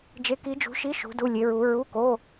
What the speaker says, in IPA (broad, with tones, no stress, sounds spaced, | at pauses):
d͡ʒ e˧˥ k i˧˥ d͡ʒ ṳ˧˥ ʃ i˧˥˧ ʃ ṳ˧˥ d u˧˥˧ lʲ e˧˥ ɹ u˧˥ ɹ u˧˥˧ k o˧˥˧